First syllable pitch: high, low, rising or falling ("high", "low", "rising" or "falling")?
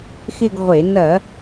falling